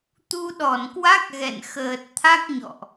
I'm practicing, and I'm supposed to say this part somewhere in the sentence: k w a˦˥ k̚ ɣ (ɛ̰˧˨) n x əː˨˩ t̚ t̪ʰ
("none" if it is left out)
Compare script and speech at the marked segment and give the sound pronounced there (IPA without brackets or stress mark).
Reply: ɛ̰˧˨